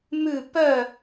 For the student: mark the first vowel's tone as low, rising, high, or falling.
falling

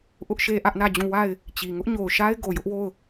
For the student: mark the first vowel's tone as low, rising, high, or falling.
high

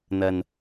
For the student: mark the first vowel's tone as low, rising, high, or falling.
low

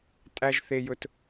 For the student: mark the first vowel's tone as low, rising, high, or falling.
high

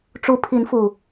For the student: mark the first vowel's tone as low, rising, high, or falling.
rising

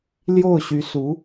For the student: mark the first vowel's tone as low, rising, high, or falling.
falling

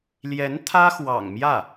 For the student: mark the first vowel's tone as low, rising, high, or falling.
rising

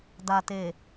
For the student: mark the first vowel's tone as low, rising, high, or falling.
low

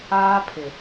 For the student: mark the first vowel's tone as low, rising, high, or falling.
high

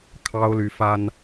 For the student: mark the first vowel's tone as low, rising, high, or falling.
high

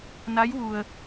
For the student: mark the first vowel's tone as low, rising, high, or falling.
rising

